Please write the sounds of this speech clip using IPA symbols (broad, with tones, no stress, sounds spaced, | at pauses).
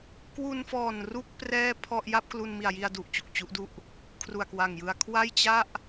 k w u˧ n f ɔː˨˩ n r u˥˩ k̚ p r ɛː˥˩ pʰ ɔ˥˩ ʔ j a˥˩ p̚ k l u˧ n m i˨˩ a̯ j i˧ a̯ d u˨˩ ʔ t͡ɕ u˨˩ k̚ t͡ɕ u˦˥ ʔ d u˥˩ ʔ | kʰ r u˨˩ a̯ k w a˨˩ ŋ j ɯ˧ a̯ kʰ w a˥˩ j t͡ɕ a˥˩ ʔ